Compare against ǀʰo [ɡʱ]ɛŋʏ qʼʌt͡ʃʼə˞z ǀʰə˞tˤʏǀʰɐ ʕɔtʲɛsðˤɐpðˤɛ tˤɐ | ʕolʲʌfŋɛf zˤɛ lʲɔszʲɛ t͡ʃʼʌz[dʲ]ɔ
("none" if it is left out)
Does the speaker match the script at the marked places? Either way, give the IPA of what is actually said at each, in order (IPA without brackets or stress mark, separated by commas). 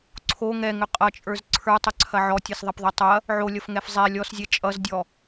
ŋ, dʲ